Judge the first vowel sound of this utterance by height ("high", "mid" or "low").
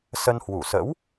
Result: mid